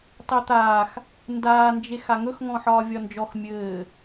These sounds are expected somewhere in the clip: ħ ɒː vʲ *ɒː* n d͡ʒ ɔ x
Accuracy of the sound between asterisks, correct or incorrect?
incorrect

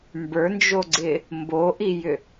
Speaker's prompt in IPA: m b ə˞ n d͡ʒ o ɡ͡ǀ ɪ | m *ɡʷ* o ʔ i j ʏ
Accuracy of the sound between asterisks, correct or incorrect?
incorrect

